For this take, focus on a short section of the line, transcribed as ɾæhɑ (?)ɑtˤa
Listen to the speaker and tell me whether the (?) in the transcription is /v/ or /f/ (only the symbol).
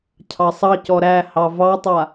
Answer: v